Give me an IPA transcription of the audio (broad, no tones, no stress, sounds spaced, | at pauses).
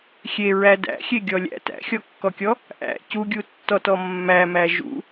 xʲ e ɹ æ d æ̰ xʲ e ɡʲ ɔ lʲ æ̰ t æ̰ xʲ ɔ kː ɔ kʲ ɔ | ʔ æ̰ c u ɡʲ u tː ɔ t ɔ mː æ m æ ʒ ṵ